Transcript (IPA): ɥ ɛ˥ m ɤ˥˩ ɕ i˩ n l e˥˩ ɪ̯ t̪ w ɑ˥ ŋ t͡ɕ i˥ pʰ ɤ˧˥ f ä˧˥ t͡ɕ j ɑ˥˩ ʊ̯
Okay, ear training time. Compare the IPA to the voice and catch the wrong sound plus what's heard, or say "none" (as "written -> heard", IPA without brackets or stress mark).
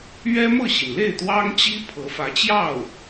none